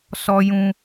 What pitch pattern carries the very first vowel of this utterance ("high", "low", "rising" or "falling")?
low